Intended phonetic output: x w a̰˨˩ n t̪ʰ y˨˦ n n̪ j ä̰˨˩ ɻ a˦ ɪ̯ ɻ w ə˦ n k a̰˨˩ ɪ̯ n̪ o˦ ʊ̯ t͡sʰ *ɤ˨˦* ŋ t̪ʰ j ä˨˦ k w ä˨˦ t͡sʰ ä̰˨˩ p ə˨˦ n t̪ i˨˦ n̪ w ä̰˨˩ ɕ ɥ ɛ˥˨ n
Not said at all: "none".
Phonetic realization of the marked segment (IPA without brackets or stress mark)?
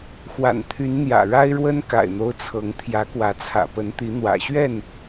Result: ɤ˨˦